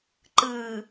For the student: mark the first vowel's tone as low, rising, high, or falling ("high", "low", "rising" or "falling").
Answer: low